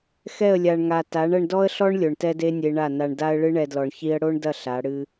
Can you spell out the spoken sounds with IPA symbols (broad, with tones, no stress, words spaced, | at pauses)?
xɛ˦˨ə̯lʲa˨ɳŋa˨ ta˨˦ɳ ɐ˧ɳdɔ˦ə̯ɬɔ˦ɳ lʲo˨ɳtɛ˦ de˦nʲe˧ɳa˦˨na˧ɳ da˦ə̯ɭɨ˦ɳɛ˧dlɔ˨ɳ çi˦ə̯ ɽo˦ɳdɐ˦˨ ɬa˨˦ɽɨ˦